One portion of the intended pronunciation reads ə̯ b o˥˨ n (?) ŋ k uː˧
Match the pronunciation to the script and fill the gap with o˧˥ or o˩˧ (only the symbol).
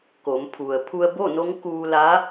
o˧˥